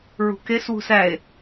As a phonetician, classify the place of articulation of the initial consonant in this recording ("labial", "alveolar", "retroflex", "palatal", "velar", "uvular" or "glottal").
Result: alveolar